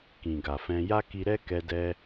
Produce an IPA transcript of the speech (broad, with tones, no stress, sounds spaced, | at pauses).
k ĩ˨ ɡ a˨ f ɛ̃˧ j a˦ k i˧ ɾ ɛ˦ k ɛ˧ d ɛ˧